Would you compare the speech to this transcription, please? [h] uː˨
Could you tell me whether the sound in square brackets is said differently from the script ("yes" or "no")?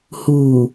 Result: no